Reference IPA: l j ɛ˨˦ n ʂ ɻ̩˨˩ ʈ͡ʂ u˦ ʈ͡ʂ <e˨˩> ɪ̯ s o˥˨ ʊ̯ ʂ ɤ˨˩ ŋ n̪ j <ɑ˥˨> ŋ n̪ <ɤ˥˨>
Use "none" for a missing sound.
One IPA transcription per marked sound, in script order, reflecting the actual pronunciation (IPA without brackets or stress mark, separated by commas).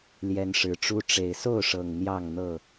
e˨˩, ɑ˥˨, ɤ˥˨